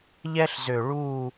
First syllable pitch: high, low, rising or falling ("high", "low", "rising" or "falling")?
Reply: high